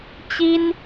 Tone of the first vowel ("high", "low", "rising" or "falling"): high